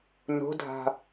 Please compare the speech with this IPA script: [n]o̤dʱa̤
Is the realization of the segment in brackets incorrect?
no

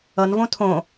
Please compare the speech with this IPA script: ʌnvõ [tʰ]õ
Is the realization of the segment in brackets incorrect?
no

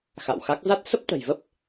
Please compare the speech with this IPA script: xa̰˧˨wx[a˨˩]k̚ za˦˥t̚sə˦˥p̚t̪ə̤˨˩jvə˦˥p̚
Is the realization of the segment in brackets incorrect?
yes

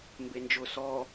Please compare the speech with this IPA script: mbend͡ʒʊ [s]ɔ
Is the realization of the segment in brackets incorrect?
no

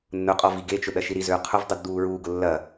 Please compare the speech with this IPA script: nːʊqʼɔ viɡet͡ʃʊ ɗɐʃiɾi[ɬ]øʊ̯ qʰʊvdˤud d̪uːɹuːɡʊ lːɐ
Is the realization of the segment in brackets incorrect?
yes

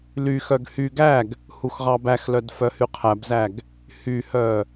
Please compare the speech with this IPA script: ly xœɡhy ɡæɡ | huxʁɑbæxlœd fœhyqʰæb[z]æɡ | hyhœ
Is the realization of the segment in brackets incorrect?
no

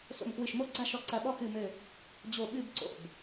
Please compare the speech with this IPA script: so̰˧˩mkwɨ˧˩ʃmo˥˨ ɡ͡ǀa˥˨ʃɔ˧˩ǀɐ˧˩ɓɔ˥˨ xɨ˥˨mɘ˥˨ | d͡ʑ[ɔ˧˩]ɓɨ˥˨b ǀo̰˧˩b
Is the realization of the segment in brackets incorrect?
yes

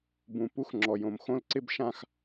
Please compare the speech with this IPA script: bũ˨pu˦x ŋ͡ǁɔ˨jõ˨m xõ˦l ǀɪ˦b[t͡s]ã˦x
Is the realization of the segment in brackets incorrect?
yes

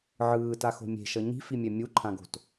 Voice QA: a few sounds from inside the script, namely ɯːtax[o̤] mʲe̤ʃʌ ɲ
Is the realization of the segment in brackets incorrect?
no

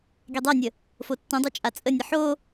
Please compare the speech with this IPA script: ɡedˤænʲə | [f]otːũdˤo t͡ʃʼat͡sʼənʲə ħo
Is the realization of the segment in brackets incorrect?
no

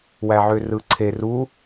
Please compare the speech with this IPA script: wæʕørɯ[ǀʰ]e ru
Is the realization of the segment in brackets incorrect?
no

